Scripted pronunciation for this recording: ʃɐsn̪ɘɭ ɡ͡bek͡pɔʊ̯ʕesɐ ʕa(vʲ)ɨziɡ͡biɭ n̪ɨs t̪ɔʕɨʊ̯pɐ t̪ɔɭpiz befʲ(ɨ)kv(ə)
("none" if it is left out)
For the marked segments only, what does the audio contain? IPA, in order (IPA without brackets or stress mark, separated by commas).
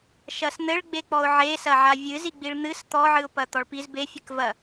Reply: vʲ, ɨ, ɐ